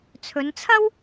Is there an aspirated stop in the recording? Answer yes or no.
yes